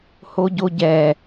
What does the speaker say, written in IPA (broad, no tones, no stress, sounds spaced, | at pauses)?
h o ɟ o ɟ ɛ